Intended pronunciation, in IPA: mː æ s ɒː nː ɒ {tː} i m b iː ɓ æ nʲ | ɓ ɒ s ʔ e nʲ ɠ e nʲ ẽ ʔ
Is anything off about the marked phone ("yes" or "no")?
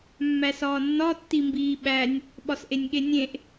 no